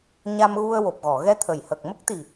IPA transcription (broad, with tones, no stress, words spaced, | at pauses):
ɲa˧mɣu˧ə̯ wo˨˩p̚ɣɔ˨˩˨ɣɛ˧ t̪ʰə˨˩˨jhə˨˩k̚ mə˦˥k̚t̪i˨˩